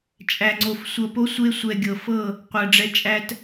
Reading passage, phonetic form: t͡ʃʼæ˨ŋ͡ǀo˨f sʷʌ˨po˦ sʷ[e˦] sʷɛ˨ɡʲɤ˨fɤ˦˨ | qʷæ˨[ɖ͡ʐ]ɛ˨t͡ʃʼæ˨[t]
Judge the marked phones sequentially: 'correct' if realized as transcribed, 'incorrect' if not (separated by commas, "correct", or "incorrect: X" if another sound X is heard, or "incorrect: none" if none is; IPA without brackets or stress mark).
correct, correct, correct